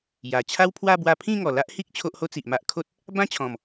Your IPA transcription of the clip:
j a˨˩ t͡ɕʰ a˦ w pʰ w a˥˧ b w a˧ pʰ ĩ˥˧ ŋ ɔ˨˩ l a˦ ʔ h i˦ k̚ t͡ɕʰ o˦ ʔ h o˦ t͡s i˨ ʔ m a˦ ʔ kʰ o˦ t̚ | b ã˦ t͡ɕʰ ɔ̃˨˩ m

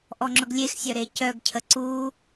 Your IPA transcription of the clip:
ʔ ɔ ŋ͡ǁ ʊ ɡ lʲ e x sʲ œ ɾ e c œ ɡ cʰ ə ǀ u

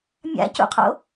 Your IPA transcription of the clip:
mʲ a̰ c ṵ qʰ o̰

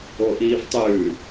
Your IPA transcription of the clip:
o ʔ iː v tˤ ʉː

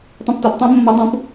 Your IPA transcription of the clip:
tˤ ũ˧ p t ɔ˩˥ p tˤ ĩ˦˥ mː ɔ˦˥ dˤ ũ˦˥ p

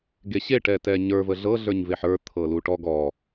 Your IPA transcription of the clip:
ɡ e ɕ e ʈ ɛ t ɛ ɲ ə˞ v ə ɮ ɤ ɮ ə˞ ɲ v e ħ ə˞ t̪ʰ ɤ l u ʈ ɔ ɡ ɔ

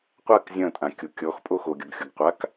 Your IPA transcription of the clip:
qʷ a k zʲ ɐ̃ tʼ ã kʲ o kʲ ɔ x pʼ o x o ɡʲ ɔ ɡ xʲ o ɡ qʷ a k

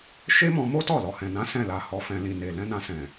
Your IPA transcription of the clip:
ʃ e˦ m ɔ̃˧ m o˦ t ɔ˦˨ l ɔ˨ h ɛ̃˨ n ã˨˦ s ɛ̃˦˨ l a˧ h ɔ˧ f ɛ̃˧ l ĩ˨ n e˨ l ɛ̃˧ n ã˧ s ɛ̃˨

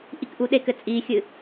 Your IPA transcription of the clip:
ʔ i k ʔ u ɗ e k ɘ t͡sʼ i xʲ ɨ

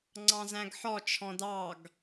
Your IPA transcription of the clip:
ŋ͡ǀ ɑ̃ z æ̃ ɡ ħ ɔ t͡ʃʰ ɔ̃ d ɑ ɡ

